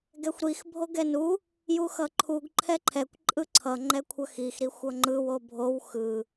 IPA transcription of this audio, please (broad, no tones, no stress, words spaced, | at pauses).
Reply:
ɡɛxʷɾix bʱoɡɛnu | juxʌǃʰuɡ ǃʰɛǃʰɛkʷ ǃʼɯǀʰʌ ŋ͡ǃɛkʷʰʌxix ɾixʷʌŋ͡ǃɯw obʱow xɯ